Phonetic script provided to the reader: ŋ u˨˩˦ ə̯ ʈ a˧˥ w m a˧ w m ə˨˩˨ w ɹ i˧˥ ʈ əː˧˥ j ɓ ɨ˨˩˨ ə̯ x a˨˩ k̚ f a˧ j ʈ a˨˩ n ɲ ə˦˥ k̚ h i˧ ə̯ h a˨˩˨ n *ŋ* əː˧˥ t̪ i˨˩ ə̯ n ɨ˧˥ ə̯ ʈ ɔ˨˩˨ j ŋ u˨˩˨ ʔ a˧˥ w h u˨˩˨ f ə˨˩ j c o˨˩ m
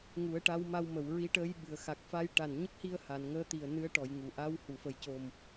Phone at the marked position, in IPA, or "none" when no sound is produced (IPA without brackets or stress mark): ŋ